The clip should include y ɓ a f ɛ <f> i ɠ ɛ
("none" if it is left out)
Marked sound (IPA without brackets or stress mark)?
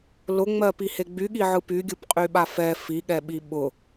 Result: f